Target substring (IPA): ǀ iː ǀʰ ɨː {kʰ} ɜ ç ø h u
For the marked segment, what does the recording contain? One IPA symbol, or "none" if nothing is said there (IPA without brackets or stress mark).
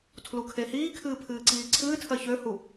tʰ